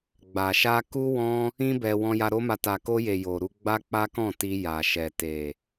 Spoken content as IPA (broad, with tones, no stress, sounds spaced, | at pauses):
ɡ͡b a˨ ʃ a˧ k u˦ w ɔ̃˦ | ĩ˦ b ɛ˧ w ɔ̃˧ j a˧ ɾ o˦ m a˧ t a˨ k o˧ j e˨ j o˨ ɾ u˧ ɡ͡b a˦ k͡p a˦ k ɔ̃˦˨ t i˧ j a˨ ʃ ɛ˨ t e˨